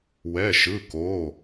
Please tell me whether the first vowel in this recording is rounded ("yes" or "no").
no